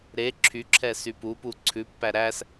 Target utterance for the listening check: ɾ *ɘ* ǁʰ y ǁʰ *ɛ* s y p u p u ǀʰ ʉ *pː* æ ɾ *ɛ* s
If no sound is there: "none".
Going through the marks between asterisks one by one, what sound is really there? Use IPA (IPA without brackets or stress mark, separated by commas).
e, ɛ, pː, æ